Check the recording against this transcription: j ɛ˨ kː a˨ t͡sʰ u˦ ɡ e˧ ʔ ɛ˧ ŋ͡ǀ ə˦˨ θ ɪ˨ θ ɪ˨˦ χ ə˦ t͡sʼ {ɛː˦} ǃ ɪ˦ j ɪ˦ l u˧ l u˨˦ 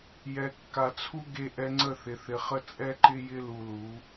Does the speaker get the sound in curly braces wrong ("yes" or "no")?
yes